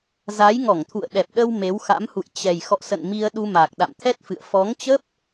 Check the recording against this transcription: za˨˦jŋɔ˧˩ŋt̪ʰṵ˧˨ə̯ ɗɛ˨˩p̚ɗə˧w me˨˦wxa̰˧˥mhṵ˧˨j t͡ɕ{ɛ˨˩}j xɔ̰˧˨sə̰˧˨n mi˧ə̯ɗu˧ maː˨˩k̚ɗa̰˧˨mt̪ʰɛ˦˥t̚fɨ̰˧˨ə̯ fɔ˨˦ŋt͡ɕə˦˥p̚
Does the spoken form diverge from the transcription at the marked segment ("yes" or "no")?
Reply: no